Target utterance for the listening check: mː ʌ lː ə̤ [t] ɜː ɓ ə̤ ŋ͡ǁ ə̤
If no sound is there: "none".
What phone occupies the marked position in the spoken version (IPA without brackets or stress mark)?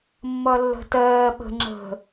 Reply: t